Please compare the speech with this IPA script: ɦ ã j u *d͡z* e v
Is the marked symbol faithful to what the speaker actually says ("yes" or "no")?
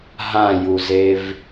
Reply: no